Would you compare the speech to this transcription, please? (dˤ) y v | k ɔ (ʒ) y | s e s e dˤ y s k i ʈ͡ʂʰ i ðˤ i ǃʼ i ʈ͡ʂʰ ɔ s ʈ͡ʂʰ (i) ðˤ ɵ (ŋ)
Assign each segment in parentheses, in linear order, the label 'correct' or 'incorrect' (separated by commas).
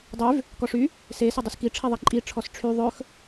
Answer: correct, incorrect, incorrect, incorrect